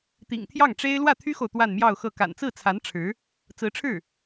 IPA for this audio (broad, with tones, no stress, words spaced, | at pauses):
t̪ḭ˨˩ŋt̪ʰjɑ˥˩ŋʈ͡ʂe˥ɪ̯ lwä˥˩t̪ʰy˥xo˨ʊ̯ t̪wa˥˧nmjɑ˥˧ʊ̯xɤ˥˩ ka̰˨˩nt͡sɹ̩˥˩t͡sʰa˧˥n ʈ͡ʂʰɻ̩˧˥ | t͡sɹ̩˧˥ʈ͡ʂʰɻ̩˥˩